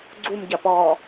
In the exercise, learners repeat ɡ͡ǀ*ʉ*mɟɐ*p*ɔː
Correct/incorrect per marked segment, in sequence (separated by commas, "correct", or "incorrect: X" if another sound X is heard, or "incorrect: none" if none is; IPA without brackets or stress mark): incorrect: u, correct